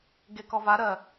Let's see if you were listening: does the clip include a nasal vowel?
no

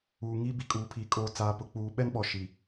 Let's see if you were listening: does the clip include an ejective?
yes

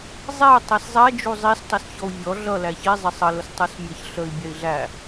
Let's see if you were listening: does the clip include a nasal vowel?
no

